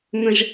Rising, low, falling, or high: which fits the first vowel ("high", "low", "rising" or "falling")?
low